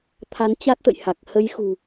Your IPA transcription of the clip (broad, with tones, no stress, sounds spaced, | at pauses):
t̪ʰ a˨˦ n t͡ɕ a˦˥ t̚ t̪ ə̰˧˨ j h a˨˩ k̚ h ə˨˦ j x ṳ˨˩